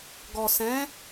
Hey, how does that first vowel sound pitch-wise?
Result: low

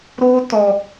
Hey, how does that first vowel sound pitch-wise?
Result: high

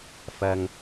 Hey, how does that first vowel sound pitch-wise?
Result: low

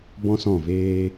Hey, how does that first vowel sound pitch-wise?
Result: high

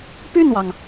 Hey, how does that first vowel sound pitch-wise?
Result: falling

